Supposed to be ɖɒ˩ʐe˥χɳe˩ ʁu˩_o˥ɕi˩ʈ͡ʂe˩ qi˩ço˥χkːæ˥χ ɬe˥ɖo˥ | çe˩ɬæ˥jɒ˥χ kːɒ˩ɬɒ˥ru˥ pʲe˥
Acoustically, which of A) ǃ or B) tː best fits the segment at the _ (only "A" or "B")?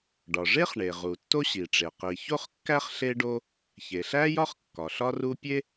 B